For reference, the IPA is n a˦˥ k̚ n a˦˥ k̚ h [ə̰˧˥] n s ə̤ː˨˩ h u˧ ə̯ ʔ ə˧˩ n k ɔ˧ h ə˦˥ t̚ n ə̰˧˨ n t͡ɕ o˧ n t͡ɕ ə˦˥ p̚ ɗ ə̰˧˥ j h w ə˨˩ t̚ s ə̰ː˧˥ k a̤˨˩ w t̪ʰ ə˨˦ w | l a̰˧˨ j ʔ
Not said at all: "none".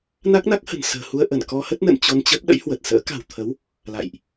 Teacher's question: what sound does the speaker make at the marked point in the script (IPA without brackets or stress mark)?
ə̤˨˩